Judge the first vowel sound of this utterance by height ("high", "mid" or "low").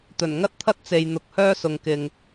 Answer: mid